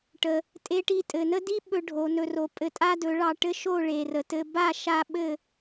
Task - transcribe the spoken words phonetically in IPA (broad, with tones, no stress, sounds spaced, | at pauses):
ʈ ə˧ | tʼ e˧ ʈ i˧ tʼ ɘ˨ n ə˦ d i˦ ɓ ɵ˦ ɖʱ o˨˦ n ɵ˧ r o˧ pʼ ɘ˧ tʼ a˦ d ɵ˨˦ ɭ ɑ˧ ʈ ɘ˦ ʃ o˦˨ ɭ e˨ r ə˨ t ɘ˧ b a˦˨ ʃ a˧ ɓ ɘ˦˨